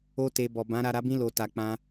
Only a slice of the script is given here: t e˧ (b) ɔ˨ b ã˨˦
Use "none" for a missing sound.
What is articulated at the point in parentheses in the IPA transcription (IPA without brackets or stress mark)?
b